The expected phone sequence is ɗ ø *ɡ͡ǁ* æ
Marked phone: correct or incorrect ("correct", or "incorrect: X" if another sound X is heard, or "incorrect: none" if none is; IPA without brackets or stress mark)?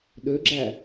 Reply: correct